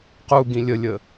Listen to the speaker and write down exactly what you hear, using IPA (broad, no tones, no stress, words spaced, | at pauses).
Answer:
quɡĩ lʲəlʲə